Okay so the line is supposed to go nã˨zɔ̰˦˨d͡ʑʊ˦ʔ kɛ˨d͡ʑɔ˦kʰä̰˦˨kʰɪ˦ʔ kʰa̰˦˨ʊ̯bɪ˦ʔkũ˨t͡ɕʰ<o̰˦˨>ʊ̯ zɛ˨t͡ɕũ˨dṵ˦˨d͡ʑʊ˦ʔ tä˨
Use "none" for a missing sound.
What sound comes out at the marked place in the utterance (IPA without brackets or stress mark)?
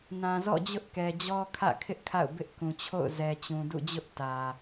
o̰˦˨